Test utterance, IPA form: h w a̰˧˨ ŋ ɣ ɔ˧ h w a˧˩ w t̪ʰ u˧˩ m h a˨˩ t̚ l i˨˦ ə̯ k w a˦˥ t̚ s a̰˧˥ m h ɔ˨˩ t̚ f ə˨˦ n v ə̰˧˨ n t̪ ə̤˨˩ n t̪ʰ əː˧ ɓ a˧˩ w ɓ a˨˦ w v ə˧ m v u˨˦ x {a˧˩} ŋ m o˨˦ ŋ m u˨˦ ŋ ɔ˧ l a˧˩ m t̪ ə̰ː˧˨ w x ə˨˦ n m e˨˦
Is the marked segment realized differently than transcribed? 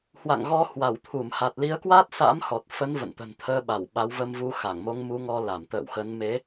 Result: no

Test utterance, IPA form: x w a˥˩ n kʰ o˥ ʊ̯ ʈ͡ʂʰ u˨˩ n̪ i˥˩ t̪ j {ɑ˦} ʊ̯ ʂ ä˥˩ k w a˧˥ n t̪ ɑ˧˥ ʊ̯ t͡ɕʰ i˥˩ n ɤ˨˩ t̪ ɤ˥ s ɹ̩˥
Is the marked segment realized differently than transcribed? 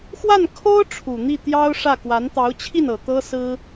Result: yes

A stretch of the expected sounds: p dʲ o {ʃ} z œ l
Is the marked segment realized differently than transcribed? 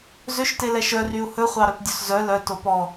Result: yes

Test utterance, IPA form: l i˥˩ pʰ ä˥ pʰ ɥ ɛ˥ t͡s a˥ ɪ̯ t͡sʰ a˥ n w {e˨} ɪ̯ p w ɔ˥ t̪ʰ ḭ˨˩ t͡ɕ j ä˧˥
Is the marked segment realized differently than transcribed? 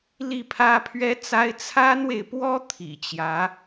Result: no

